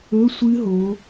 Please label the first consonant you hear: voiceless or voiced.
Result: voiceless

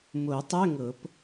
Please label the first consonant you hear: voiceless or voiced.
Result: voiced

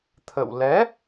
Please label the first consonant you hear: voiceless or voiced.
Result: voiceless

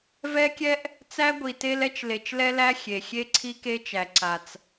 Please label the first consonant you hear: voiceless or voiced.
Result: voiced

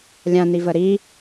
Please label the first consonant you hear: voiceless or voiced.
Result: voiced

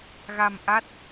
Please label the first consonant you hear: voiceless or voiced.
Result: voiced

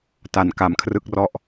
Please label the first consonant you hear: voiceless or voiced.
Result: voiceless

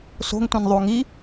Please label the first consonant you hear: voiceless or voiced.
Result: voiceless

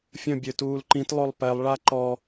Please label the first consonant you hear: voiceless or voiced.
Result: voiceless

